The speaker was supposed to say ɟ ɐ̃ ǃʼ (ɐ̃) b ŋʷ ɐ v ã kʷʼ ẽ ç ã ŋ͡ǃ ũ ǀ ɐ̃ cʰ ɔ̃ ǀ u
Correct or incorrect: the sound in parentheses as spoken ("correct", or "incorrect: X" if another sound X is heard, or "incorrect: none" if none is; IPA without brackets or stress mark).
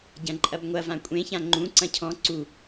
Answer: incorrect: ɐ